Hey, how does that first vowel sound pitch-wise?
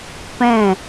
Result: falling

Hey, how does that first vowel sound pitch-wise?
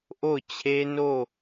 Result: falling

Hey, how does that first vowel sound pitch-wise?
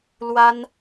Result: high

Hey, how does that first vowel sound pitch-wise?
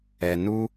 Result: low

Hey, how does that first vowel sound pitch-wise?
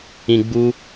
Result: low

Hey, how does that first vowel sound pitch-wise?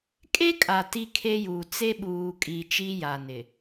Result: high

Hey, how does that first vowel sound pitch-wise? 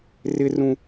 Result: high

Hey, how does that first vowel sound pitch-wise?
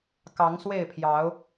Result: rising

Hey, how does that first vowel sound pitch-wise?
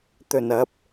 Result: low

